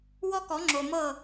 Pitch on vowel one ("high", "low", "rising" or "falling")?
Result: high